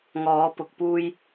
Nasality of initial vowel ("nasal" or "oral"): oral